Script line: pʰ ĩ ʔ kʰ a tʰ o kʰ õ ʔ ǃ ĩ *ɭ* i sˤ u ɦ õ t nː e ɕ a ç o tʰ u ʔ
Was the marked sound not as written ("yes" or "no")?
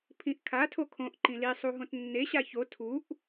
yes